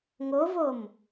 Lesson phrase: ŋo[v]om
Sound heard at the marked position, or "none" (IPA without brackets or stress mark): v